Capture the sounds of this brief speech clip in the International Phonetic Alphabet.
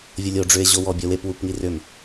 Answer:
vʲ o lʲ o ɖ͡ʐ ʏ e̯ ʑ o w ɔ bʲ ɔ w e p w u p ŋ i r ʏ m

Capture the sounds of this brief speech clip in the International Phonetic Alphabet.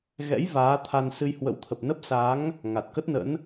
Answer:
ɣ ɛ̰˧˥ j v aː˨˦ t̪ʰ a˧ n s ɨ˧ j h w ə̰˧˥ w t̪ʰ ə˨˩ p̚ n ə˦˥ p̚ s aː˨˦ ŋ | ŋ a˨˩ t̚ k ə˦˥ t̚ n ə̰˧˥ n

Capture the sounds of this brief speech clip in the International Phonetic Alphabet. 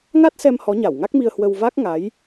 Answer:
ŋ a˦˥ t̚ s ɛ˧ m h ɔ˨˦ ɲ a˧˩ w ŋ a˦˥ k̚ m i˧ ə̯ h w ə˧ w v a˦˥ k̚ ŋ a˨˦ j

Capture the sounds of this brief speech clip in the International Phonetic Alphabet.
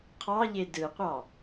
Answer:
qʰ ɑ ʎ e d ɯ qʷ ɑ

